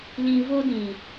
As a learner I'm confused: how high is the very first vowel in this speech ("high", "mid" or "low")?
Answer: high